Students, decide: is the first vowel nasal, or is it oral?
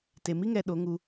oral